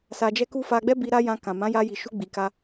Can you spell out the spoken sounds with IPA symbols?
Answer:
s a˧ d͡ʒ ɛ˦ k u˦ f a˧ ɡ͡b ɛ˦ b i˧ ɾ a˦ j ã˧ k ã˨ m ã˨˦ j a˧ j i˨ ʃ u˧ ɡ͡b i˨ k a˧

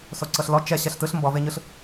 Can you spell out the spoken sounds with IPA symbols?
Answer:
s o ǀ ɤ ɬ l ɔ t͡ʃ ɛ ɕ ɛ ɬ t ɯ ɬ m b ɔ v e ɲ ɯ ɬ

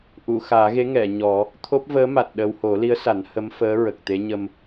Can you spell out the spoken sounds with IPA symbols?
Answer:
ʔ u˨˩˨ x aː˨˩˦ ɣ e˧˥ ŋ ɛ˨˩˨ ɲ ɔ˨˩˦ | t̪ʰ o˦˥ p̚ v əː˧˥ m a˨˩ t̚ ɗ ə˧ w h o˨˩˦ l i˧˥ ə̯ s a˨˩˦ n h ə˧˥ m f əː˧˥ ɹ ə˨˩ k̚ t̪ e˧˥ ɲ ə˧ m

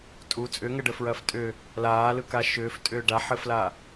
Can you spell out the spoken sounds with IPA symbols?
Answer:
tʼ u t͡sʼ ʏ ŋ ɘ ɖ ə f ɹ ɐː f tʼ ʏ | l aː l ɯ k a ʃ ʏː f tʼ ʏː ɖ a ħ ɘ f l a

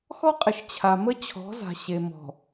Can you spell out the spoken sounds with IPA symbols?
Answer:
x ɔ˦ qʼ ɪ˨ ʃ t͡ɕʰ a˨ m ə˦ t͡ɕʰ ɔ̤˨˦ z a̤˨ ɕ e˨ m ɔ̤˨

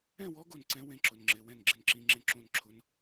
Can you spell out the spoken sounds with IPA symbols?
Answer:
ɛ̃˥˩ w ɔ˧˥ ɡ o˥˩ n ǀ ɛ̃˧˥ w ẽ˧˥ ǁ ʊ˩˧˩ n ŋ͡ǁ ɪ˩˧˩ w ɛ̃˥˩ n ɡ͡ǁ ɪ˥˩ n ǁ ĩ˧˥ ŋ͡ǁ ẽ˧˥ ǁ õ˥˩ n ǁʰ ʊ˧˥ n

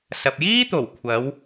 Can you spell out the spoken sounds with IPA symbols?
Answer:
s ɐ˨ p̚ j iː˥ t̪ o˨˩ w kʷʰ ɐ˨˧ w

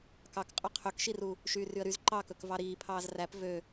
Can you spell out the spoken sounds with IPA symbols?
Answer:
k ɑ k qʼ ɵ qʰ ø k ʃ i r u | ʃ yː r y ə̯ ɾ y z ǃ ɑ k ɵ k v ɑ ɾ iː pʰ ɑː z r æ p v ø

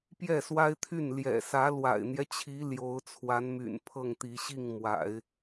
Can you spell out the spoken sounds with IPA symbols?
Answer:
p j ɛ˥˩ s w a˥ ɪ̯ t̪ʰ y˥˩ n l j ɛ̰˨˩ s ä˧˥ l w a̰˨˩ ɪ̯ n̪ j ɛ˦ t͡ɕʰ i˧˥ l j o˧˥ ʊ̯ t͡sʰ w a˧˥ n m y̰˨˩ n pʰ ɤ˥˩ ŋ t̪ i˧˥ ɕ i˥˩ ŋ m w a̰˨˩˦ ɪ̯

